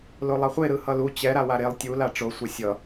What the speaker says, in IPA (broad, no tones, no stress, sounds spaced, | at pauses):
l o lˠ ʌ χʷ e ɾ ɯ h ʌ l u t͡ɕ ɛ ɾ a w a ɾ e lˠ tʲ u l a ʈ͡ʂ o sʷ ʌ sʲ ʌ